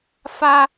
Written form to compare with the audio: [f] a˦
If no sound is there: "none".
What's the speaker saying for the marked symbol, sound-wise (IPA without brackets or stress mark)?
f